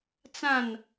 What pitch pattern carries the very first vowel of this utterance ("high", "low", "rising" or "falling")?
falling